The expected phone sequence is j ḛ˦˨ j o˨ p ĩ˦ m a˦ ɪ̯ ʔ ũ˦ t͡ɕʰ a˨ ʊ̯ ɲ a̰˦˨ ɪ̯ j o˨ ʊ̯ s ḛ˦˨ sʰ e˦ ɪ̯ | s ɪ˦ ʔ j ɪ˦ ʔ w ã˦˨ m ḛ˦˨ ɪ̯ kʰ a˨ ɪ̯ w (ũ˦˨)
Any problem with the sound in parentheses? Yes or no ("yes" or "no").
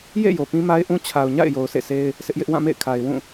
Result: no